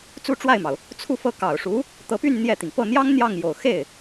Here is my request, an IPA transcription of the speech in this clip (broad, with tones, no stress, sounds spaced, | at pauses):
t͡s u˥˧ ʈ͡ʂ w a˥˩ ɪ̯ m ɑ˩ ʊ̯ | t͡sʰ u˥˧ f ɤ˥˩ k ɑ˨˩ ʊ̯ ʂ u˧˥ | t̪ ɤ˧˥ p y˥˧ n n̪ j ɛ˥˩ t̪ i˩ ŋ p ɤ˥˩ n̪ j ɑ˥ ŋ n̪ j ɑ˥˩ ŋ j o˨˩ ʊ̯ x e˥˩ ɪ̯